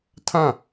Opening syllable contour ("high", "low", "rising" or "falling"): falling